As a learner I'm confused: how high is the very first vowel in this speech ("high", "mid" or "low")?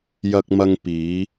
low